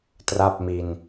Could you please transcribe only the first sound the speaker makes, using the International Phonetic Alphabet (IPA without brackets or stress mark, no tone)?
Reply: t